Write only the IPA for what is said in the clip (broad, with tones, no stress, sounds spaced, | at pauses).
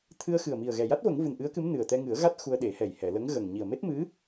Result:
t̪ʰ ɨ˧ ə̯ x ɨ˨˩ ə̯ m i˨˩ ə̯ ɣ ɛ˨˩ j a˦˥ t̚ v ə˨˩˦ ŋ v ɨ˨˩ n ʔ ɨ˧˥ ə̯ k ɨ˧˥ m n ɨ˨˩ ə̯ t̪ ɛ˧ ŋ ɨ˨˩˦ ə̯ ɣ a˦˥ t̚ x u˧ ə̯ ɗ e˨˩˦ h ɛ˨˩ j h ɛ˨˩˨ l ə˧˥ ŋ ɣ ə˨˩ ŋ ɲ i˨˩ ə̯ m e˦˥ t̚ m ɨ˧˥